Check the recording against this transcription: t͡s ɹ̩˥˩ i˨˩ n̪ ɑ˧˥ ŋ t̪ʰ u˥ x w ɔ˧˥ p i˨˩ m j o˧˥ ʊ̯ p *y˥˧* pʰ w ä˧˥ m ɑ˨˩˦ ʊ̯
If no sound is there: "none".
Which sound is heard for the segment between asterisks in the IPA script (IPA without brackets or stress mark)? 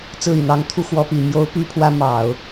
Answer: y˧˥